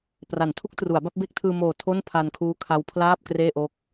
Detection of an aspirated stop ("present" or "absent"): present